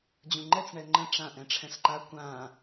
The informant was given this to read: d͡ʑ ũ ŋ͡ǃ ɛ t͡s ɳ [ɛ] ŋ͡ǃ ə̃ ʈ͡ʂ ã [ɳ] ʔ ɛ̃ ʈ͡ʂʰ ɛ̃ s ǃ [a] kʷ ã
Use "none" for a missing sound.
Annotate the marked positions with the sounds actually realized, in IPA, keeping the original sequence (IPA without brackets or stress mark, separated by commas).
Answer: ɛ, none, a